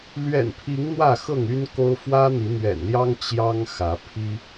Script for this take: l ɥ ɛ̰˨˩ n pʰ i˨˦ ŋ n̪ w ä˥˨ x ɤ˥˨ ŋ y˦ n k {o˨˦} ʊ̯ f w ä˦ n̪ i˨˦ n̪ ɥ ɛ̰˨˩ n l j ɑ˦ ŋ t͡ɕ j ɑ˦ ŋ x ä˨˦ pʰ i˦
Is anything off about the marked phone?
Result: yes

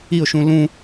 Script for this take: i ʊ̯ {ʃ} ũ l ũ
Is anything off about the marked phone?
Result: no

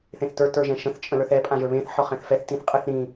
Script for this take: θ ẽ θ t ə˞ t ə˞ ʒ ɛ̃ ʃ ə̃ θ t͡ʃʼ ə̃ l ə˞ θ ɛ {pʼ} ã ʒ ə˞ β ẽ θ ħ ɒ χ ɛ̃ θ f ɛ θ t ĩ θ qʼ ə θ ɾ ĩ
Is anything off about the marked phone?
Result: no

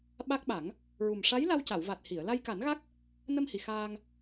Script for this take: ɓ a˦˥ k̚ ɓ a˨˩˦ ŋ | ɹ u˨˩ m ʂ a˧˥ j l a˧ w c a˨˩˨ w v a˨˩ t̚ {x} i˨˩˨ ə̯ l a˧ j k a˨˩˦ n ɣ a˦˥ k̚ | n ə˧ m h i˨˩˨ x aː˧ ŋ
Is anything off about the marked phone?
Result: yes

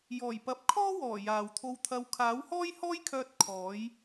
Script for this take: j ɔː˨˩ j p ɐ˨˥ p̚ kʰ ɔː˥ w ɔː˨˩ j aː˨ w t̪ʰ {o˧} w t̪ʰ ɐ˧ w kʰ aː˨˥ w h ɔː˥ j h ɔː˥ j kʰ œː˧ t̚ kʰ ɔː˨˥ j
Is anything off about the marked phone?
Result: no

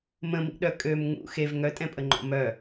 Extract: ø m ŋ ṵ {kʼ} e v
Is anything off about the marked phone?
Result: yes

